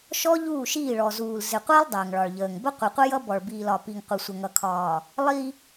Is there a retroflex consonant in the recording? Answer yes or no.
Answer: yes